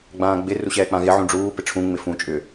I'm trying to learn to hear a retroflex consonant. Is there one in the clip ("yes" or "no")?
yes